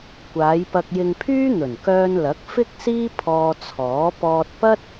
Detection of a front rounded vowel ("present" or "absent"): present